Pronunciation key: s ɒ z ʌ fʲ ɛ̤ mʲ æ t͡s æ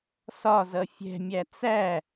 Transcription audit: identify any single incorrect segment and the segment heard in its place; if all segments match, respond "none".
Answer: none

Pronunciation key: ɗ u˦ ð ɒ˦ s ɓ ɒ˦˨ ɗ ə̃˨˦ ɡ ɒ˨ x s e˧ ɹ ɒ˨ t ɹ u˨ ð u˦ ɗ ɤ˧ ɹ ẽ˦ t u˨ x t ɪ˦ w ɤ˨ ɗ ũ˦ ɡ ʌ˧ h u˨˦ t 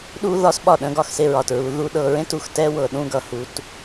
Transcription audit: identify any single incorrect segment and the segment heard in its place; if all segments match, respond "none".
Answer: ɪ˦ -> ɛ˦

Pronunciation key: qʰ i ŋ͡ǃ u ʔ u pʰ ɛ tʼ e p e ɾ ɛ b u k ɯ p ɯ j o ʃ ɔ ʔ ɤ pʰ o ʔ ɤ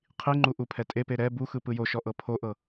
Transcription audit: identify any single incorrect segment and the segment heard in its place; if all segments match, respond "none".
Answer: k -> x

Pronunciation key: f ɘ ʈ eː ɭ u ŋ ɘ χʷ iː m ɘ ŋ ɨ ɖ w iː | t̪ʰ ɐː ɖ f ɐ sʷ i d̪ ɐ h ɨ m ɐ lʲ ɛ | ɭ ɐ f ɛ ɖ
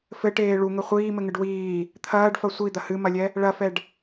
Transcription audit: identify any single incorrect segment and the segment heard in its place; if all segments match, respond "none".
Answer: none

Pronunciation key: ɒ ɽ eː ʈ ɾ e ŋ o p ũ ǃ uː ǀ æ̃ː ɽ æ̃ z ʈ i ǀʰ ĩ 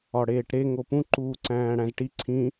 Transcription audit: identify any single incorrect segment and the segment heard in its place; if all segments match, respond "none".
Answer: none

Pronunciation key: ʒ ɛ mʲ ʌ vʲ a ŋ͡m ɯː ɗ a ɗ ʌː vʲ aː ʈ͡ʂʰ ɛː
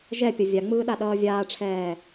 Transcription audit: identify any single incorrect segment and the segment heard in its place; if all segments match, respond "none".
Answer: mʲ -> pʲ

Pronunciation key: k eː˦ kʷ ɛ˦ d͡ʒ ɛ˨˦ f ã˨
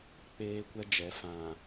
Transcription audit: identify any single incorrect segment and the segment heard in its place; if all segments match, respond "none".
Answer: k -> k͡p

